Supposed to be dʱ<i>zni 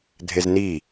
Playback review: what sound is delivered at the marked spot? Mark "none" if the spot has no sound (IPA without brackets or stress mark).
e